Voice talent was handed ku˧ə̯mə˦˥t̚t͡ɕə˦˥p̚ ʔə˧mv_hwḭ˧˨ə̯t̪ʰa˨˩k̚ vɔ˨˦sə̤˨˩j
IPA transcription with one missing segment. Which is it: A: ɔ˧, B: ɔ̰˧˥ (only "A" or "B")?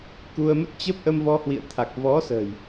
A